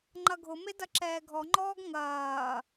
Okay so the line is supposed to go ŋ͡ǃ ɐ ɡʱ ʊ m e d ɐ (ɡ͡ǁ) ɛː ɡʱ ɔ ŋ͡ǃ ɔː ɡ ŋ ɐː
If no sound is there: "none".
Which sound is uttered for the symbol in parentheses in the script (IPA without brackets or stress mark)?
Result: ǁ